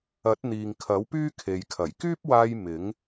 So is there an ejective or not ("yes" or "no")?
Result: no